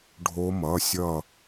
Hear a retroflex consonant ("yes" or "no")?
yes